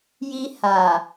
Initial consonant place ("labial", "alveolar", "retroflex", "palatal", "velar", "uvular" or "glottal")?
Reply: palatal